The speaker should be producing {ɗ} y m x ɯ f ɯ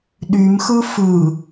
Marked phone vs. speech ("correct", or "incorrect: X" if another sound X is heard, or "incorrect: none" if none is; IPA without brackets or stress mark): correct